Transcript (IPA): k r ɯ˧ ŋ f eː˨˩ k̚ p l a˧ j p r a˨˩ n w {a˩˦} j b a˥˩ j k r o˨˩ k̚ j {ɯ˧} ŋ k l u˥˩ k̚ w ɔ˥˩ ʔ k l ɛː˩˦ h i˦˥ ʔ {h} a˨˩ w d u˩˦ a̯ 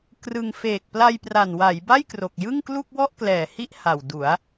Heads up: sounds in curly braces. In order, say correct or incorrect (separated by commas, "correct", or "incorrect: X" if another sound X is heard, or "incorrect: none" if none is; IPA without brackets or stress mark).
correct, incorrect: ɯ˥˩, correct